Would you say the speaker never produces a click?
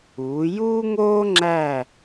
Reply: no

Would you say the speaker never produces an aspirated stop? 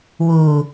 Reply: yes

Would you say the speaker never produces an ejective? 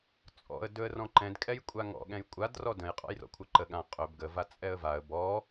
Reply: no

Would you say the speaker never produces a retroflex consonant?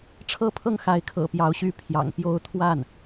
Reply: no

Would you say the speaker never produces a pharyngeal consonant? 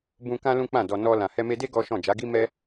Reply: yes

